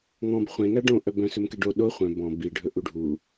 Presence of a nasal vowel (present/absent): present